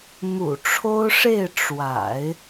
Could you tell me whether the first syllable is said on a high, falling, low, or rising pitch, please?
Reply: low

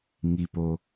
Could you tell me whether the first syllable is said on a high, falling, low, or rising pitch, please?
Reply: low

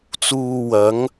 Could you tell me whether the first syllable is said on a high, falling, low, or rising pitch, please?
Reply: low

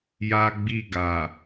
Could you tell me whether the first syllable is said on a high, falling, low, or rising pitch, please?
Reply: high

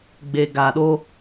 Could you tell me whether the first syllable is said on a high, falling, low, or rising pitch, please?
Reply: low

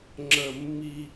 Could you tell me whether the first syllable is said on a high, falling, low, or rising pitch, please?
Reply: falling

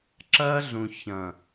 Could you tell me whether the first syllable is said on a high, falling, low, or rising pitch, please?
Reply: high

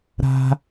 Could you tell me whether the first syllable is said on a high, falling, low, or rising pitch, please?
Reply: high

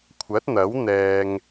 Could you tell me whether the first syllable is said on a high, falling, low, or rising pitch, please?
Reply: rising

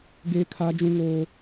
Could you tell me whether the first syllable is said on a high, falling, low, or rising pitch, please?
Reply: high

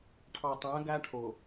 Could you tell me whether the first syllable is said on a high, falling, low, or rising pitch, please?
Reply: low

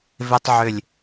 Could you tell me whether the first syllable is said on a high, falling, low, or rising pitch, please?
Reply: high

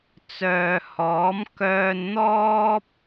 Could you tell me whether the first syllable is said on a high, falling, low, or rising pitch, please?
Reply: low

